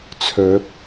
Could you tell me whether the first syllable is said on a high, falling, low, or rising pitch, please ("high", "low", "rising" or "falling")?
rising